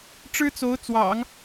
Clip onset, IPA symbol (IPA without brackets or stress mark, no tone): ʈ͡ʂ